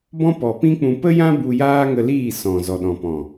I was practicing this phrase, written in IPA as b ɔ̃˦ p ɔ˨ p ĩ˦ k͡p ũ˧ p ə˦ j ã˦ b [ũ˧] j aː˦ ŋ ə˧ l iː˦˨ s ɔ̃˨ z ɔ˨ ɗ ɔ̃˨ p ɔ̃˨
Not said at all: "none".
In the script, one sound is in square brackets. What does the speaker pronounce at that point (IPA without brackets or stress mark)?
u˧